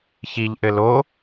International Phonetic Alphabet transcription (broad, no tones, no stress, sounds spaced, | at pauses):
ç i ʎ ʔ ɘ l o